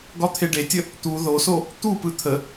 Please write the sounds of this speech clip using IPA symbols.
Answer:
ɡ ɒ t̪ʰ e ɖ e tʲ ə | t̪ u ð o s o | t̪ u p ɯ t̪ʰ ə

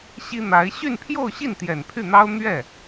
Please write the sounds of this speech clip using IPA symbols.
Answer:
ɕ i˥ n̪ a˧˥ ɪ̯ ɕ y˥˧ n pʰ j o˥˧ ʊ̯ ɕ i˥˩ n t̪ j ɛ˨˩ n pʰ y˥˩ n̪ ɑ˥ ʊ̯ n̪ ɥ ɛ˥˩

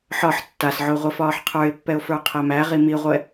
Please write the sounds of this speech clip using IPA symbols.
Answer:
ħ ɒ ħ tː a s ʕ o ʁʷ i f ɒː ħ qʰ ə˞ ɪ̯ pː ɛ ʊ̯ f ə˞ qʰ ɛ m æ ʁ i m i ʁʷ ɛ

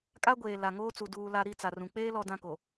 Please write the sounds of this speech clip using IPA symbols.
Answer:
kʼ a˦ ɡʷ eː˨ l a˨ ŋ oː˦ t͡s u˨ d uː˨ l a˨ ɾ i˦˨ t͡s a˨ r ũ˨ k͡p eː˦ l ɔ˨ d ã˦ k o˨

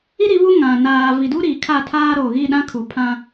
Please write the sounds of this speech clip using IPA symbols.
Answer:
i˦ ɾ i˨˦ β u˦ ŋ ã˨ n aː˨ v i˨ d u˦ ɾ iː˨ kʰ a˦˨ tʰ aː˦ ɾ oː˨ ɣ i˦˨ ɗ ã˦ kʰ u˨ pʰ ã˦

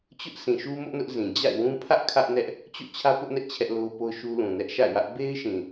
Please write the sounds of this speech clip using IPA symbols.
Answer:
t͡ɕ ʊ˦ ʔ s ĩ˨ ʃ u˦ m ʊ˦ ʔ n ʊ˦ ʔ z ĩ˨ d͡ʑ a̰˦˨ ɪ̯ w ũ˦ pʰ ä˦ ʔ kʰ ä˦ ʔ n ɛ˦ ʔ | t͡ɕ o̰˦˨ t͡ɕʰ ä˦ p ʊ˦ ʔ n ɛ˦ ʔ t͡ɕʰ ɛ˦ ʔ l o˦ ʊ̯ p o˦ ʊ̯ ʃ u˦ l ũ˨ n ɛ˦ ʔ ʃ a̰˦˨ ɪ̯ w ä˦ ʔ b e˦ ɪ̯ ʃ ĩ˨

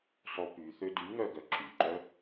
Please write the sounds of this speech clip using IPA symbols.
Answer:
sˤ o p y θ ø d y ŋ œ ɡ œ ǁ y ǃ œ

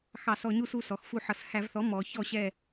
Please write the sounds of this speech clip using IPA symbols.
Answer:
x ɑ˧˩˧ s ɔ˩˧ ɲ u˦˨ s u˩˧˩ s ɔ˩˧ x f u˧˩˧ ħ ʌ˩˧ s h æ˧˩˧ v θ ɔ˩˥ m ɔ˩˧ ç ɔ˦˨ ɕ ɛ˦˨

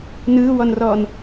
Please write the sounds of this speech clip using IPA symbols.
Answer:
n ɯː w ɔ n r ɔː n

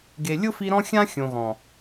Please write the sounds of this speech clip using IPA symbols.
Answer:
ɡ e˨ lʲ ʊ˦ f i˧ ɾ ɔ̃˦ xʲ ã˦ xʲ õ˨ ɣ ɔ̃˨

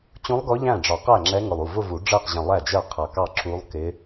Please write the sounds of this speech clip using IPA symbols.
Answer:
t͡ɕ ũ˧˥ lˠ ɡ ɔ˧˥ ʎ æ̃˥˩ ɖ͡ʐ ɒ˨˩˦ q æ˥˩ ŋ͡ǁ ɛ˧˥ ŋ ʊ˧˩ lˠ u˥˩ v ʊ˥˧ v u˨˩˦ ɖ͡ʐ əː˥˩ q ʑ ə̃˧˩ lˠ æ˥˩ d͡ʒ ɜ˥˩ qʰ ʌ˧˩ k ɑ˥˩ ǁ u˧˥ lˠ k ɪ˧˥

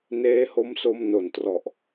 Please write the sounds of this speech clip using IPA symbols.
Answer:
n eː˦˥ h o˦˥ m s o˧ m n o˨˩ n t r ɔ˨˩ ʔ

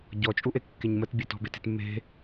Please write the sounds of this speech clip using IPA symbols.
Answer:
ɟ ɔ t͡ʃʼ u ʔ e kː e ɲ m ə t bʲ e t ɔ̤ b e t e̤ t mː e̤

